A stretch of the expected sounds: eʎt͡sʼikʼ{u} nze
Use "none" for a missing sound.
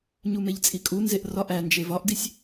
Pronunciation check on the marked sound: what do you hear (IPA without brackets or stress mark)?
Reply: u